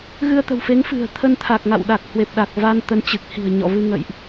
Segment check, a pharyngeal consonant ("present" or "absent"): absent